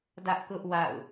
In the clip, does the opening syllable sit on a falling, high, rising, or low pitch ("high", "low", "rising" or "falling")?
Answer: high